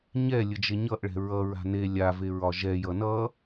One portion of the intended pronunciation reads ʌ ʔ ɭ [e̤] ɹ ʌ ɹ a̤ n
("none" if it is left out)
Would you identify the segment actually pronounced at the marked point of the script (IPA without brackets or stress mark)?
ɛ̤